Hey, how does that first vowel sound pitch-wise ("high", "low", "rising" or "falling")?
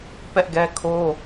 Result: high